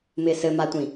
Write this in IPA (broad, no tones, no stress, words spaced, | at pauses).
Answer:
mɪːsɘmatʷĩ